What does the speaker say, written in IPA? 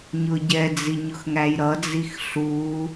ɲ ʊ ɟ ɛ d͡z i ɲ ʊ x ŋ æ j ɾ ʌ d͡z i x ɬ u

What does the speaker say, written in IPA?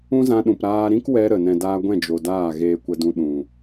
ũ˦ z ã˧ ɗ ũ˨ p ɾ aː˧ ɾ ĩ˦ k w ɛ˧ ɾ ə˨ n ɛ̃˨ d aː˧ ɡʷ ɛ̃˦˨ d͡ʒ o˨ d aː˦˨ ɣ eː˧ kʷ ə˧ d ũ˧ ɗ ũ˨

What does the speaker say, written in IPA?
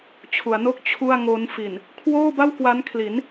t͡ɕʰ u˩˦ a̯ n o˥˩ k̚ t͡ɕʰ u˥˩ a̯ ŋ o˦˥ n f i˨˩ n | kʰ w oː˥˩ b a˥˩ w k w a˦˥ n kʰ l i˩˦ n

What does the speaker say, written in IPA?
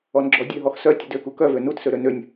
ɔ n ɡ͡ǁ ɔ dʲ ø ɦ ɔ x s œ tʲ ə d ø k u k œ v ø n u t s ø ɾ ø n ø nʲ

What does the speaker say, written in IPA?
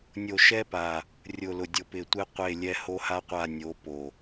nʲ o˨ ʃ ɛ˦ p a˨ | rʲ ʊ˨ l ʊ˨ dʲ ʊ˨ p ɪ˨ tʷ ɪ˦ qʷ e˦˨ lʲ ɛ˦ h o˦ h a˦ qʷ a˦˨ nʲ o˨˦ p o˨

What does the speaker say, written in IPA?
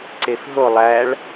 ǀ e f ɦ o lˠ æ ɭ

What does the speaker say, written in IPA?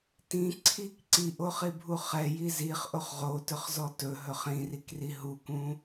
t ĩ ǀʰ i k ǀ i ʔ o χ i bʱ u χ ɛ j i z i χ ʔ o χ ʁ o t ɵ χ z ɔ t ɵ ɦ ɵ χ ĩ r i k r i ɦ u k ũ

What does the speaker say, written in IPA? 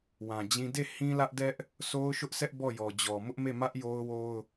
w ã˨ d͡ʑ ĩ˦ d e˦˨ h ĩ˦ l ä˦ ʔ d ɛ˦ ʔ | sʰ o˦ ʊ̯ ʃ ʊ˦ ʔ sʰ ɛ˦ ʔ b ɔ˦˨ j ɔ˨ d͡ʑ ɔ˨ m ʊ˦ ʔ m e˦˨ m ä˦ ʔ j o˦ ʊ̯ w o˦ ʊ̯

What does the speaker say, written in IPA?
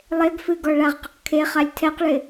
lˠ e ɡ f ɨ ɡ ɔ ɭ a ʁ q ɪ q kʰ e χ a lʲ tʰ ɛ q ɭ ɪ

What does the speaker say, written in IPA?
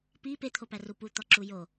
p i p e t̪ʰ o p æ r u p u t̪ ɒ ǁ u j o

